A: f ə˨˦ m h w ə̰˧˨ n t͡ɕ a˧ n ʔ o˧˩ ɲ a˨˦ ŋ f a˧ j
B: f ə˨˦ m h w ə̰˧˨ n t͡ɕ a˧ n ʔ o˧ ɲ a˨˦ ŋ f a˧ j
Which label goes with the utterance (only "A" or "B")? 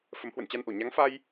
A